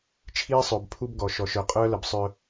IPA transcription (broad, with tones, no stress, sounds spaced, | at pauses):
t͡ʃʰ iː˦ sˤ œ˨ b pʰ u˦ b ɡ ɔ˨ ʃ ɔ˨ ʃ œ˨ qʼ œː˦ l ə˨ b sˤ œ˦